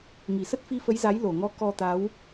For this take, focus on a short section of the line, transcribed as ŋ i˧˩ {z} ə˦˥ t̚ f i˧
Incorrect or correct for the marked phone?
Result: incorrect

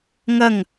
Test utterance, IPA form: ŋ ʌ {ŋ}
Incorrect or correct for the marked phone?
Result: correct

